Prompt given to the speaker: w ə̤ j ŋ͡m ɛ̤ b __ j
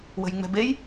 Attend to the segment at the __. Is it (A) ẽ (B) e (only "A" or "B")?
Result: B